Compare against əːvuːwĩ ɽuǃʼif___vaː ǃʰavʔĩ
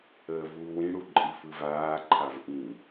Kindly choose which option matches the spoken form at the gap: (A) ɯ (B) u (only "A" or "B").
A